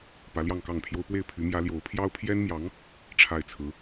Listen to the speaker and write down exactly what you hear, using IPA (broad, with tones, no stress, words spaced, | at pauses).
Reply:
pä˧˥ljɑ˥˧ŋkɑ˥˩ŋpʰjo˥ʊ̯ pwe˥˩ɪ̯pʰy˧˥ mjä˧˥ljo˧˥ʊ̯ pʰjɑ˥ʊ̯pʰjɛ˥nmjɑ˧˥ŋ | ʈ͡ʂʰa˥˩ɪ̯t͡sʰɹ̩˧˥